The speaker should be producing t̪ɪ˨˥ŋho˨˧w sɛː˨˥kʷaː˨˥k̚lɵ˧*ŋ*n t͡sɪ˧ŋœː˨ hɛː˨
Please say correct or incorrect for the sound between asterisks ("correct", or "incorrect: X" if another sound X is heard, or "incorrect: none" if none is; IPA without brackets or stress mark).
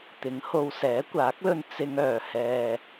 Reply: incorrect: none